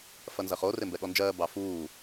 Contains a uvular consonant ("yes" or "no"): yes